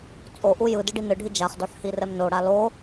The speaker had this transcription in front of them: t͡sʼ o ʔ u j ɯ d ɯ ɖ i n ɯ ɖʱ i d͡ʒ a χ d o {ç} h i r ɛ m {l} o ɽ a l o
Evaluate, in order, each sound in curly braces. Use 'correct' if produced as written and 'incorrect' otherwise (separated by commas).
incorrect, incorrect